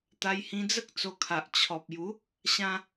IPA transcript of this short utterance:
t̪ a˧ j h ĩ˧ d͡z ə˦ k̚ t͡s o˧ kʰ a˨ ʔ t͡ɕʰ ɔ˨ p̚ j u˨˦ | ɕ ã˧

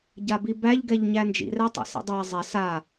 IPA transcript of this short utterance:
ɟ a b i b æ ʎ ɡ ɛ ʎ ɲ æ n d͡ʒ ḭ r æ tˤ ɛ̰ s ḭ dˤ æ zˤ ɛ s a

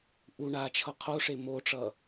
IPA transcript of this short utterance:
ʔ u ɳ a t͡ʃʰ ʌ qʰ o ʂ e m o ʈ͡ʂ ʌ

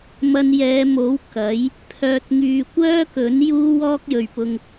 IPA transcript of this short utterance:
m ɐ˧ n j ɛː˨˧ m o˨˥ w k ɐ˨˥ j | pʰ œː˧ t̚ ŋ yː˧ kʷ œː˥ k ɵ˨˥ n j uː˥ w ɔː˥ k̚ j ɵ˨ ɥ p ʊ˧ ŋ

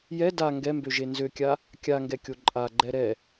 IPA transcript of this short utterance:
j ɛ d a ŋ ɡ ɛ m b ø ʒ e n z ø kʲ a | kʲ a ŋ ɡ ɛ kʲ o ǃʼ a ɡ͡ǃ ɛ ɾ ɛ

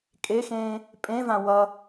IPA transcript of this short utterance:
kʼ e x ẽː | pʼ ẽ v ã w ʌ

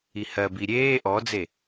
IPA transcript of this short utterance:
i h ɜ b i ɾʲ eː ʔ ɔ d͡z e

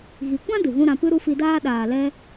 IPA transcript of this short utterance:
ɣ i˨ kʷ ã˦ d ɨ˨ ɣ ũ˦ ɾ ã˧ p ɨ˦ ɾ u˦ f i˧ d aː˦ ɗ aː˨ l ɛ˧

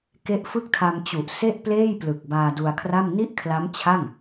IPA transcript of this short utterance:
k e˦˥ ʔ f ɯ˥˩ k̚ tʰ a˧ m t͡ɕ u˨˩ ʔ s e˥˩ ʔ p l eː˥˩ j p l ɯ˨˩ k̚ b aː˧ d u˧ a̯ kʰ r a˥˩ m n i˥˩ ʔ kʰ l a˦˥ m t͡ɕʰ a˥˩ ŋ

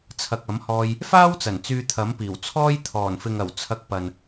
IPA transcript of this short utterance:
t͡sʰ ɐ˨ k̚ ɐ˨˥ m h ɔː˧ j | f aː˥ w t͡s ɐ˨˩ n t͡s yː˧ t̪ʰ ɐ˨˥ m p iː˨˩ w t͡sʰ ɔː˥ j t̪ʰ ɔː˨˩ n f ɪ˨ ŋ ɐ˨˩ w t͡sʰ ɐ˧ k̚ p ɐ˨ n

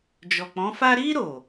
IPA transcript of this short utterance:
d͡ʒ ɔ˨ k͡p ɔ̃˨˦ f a˦ ɾ i˦ ɾ o˦˨

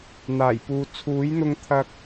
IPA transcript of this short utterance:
n̪ aː˨˩ j p uː˨ t͡sʰ uː˨˥ j n̪ ʊ˧ ŋ t̪ʰ ɐ˧ k̚

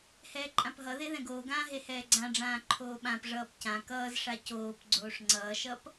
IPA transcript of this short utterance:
h ɛː ǃʼ ã p ɦ ʌ ð e ð ɛ̃ ɡ oː ɡ ãː ɦ e h ɛː ɡ͡ǀ ã ɖ͡ʐ ãː ǃʰ oː ɓ ã p ʐ ʌː p c ã k ʌː z ʂ a c oː p ɡ͡ǀ oː ʂ ŋ͡ǀ ʌː ʃ ʌ p

